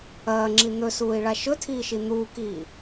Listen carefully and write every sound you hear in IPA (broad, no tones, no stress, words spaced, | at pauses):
ɐːŋ͡ǁi n̪ɵsuːi̯ɭa ʃɵtʰiːʃi n̪uːkiː